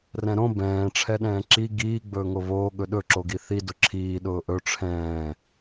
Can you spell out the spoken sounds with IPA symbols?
r ɛ̃ ɾ õ b ɛ̃ː ʈ͡ʂʰ ɛ ɗ ɛ̃ː ǁ i ɡ iː ɡ͡b ɵː ŋ o β oː ɠ ɵ ɗ ɵ ǁ o ɡ i θ i d ʊ ǁʰ iː ɗ ʊː ʔ ɵ ʈ͡ʂʰ ɛ̃ː

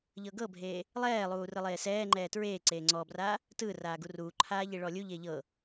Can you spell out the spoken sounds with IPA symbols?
ʎ ɤ ɡ ɤ bʱ eː | lˠ ɛː lˠ uː r ɯ lˠ eː s ɛː ŋ͡ǃ ɛː t ɹ eː ǀ eː ŋ͡ǀ ɔː b r aː | t ɯ r aː ɡ u r uː ǃʰ aː ʎ i ɭ ɔ lʲ u ʎ e ʎ ɤ

